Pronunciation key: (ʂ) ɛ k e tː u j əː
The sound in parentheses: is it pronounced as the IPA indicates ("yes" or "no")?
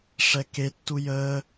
yes